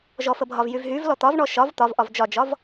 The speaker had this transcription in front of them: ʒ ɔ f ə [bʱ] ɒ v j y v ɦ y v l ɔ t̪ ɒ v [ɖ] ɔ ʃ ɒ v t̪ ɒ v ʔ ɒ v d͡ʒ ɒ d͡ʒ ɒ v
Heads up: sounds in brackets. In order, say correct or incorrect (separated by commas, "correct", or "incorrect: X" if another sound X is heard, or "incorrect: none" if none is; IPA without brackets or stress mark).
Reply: correct, incorrect: ɳ